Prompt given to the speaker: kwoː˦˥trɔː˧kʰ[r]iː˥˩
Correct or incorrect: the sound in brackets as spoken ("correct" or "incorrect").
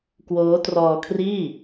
correct